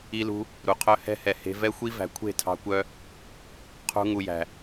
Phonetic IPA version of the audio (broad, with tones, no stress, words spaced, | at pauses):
i˦lṳ˦ | ɾu˨qʰœ˦ hɛ̤˦hɛ˨ he̤˧ vɛ˦xʷi˦ væ̤˨kʷʰe̤˦˨tʰɑ̤˧kʷœ˧ | qʰṳ˧ ŋu˨jæ̤˨